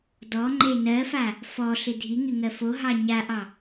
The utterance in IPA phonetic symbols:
dɔŋ͡ǃe nɜfa | fɔɬɪ dʱiŋɪŋɜ foɦɑ ɲaʔɑ

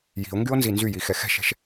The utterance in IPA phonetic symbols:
ji̤o̯ŋɡyo̯nzi nzyjixɛ xɛ̤ʃɛ̤ʃ

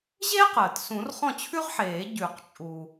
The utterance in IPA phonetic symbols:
ʑeː˥q əː˩t sũ˨˩˦rχɔ̃˥˩t͡ɕʰʉ˥ʁħeː˨˩˦ ɟʉ˨˩˦q t͡ʃʼu˩

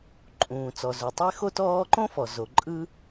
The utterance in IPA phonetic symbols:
ǃʼũː˩t͡sɔ˩zu˩ tˤe˥xo˥ tɔː˥ ǃõ˥fɔ˩ zo˩ǃʼɯ˥

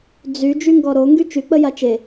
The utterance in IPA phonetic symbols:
d͡zy d͡ʒyŋɡɔɾo ŋɡyt͡ʃy k͡pəjat͡ʃe

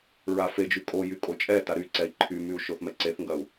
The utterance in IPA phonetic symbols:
ɹafed͡ʒy kʼojy kʼot͡ʃʼɛta ɾy ǀɛi̯ǃʰymyu̯ ʃoθmɛǀeθŋɡɐu̯

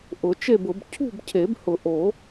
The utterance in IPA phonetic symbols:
ʔʊ˨˩˦t͡ʃe˥˨bʊ˨˩˦b cʰṳ˥˨bcʰe˨˩˦bhʊ˨˩˦ ʔo˨˩˦

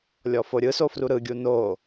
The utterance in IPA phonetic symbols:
lʲɔfoɾʲɯso fruɾɯɡʲu no

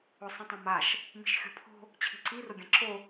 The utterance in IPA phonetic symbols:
ʊ sˤĩtˤãmaʃ | mi̤ʃxʲo̤pʰo̤ | t͡ɕʰi̤ǀi rʊɡʲãǁo

